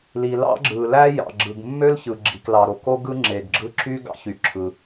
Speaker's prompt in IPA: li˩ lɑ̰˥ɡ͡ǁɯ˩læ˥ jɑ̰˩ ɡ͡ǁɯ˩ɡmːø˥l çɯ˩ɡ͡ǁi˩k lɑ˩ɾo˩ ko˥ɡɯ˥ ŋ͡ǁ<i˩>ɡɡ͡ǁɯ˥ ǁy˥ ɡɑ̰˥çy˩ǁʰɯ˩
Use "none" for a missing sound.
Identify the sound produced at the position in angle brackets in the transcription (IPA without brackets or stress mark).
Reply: e˩